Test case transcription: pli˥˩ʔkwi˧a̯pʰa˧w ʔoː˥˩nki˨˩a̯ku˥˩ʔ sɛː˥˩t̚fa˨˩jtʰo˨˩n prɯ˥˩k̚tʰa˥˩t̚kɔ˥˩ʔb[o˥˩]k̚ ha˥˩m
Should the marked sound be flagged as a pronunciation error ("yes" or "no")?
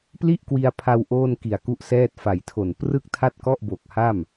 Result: yes